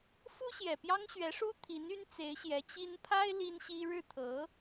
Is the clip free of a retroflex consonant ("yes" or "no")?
no